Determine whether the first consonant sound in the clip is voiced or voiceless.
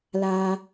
voiced